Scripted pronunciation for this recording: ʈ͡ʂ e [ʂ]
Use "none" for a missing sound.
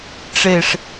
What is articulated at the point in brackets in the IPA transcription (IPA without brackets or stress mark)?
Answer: ʂ